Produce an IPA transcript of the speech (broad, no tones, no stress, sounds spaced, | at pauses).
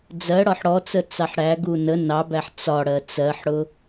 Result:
d͡z ɜ ɽ ɒ ħ ɽ ɔ t͡s ə t͡s ɑ ħ ɽ æ ɡ u n ə n ɑ b æ ħ t͡s ɒ ɽ ɜ t͡s ɜ ħ ɽ ʊ